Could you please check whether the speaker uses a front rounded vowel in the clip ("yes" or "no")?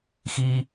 no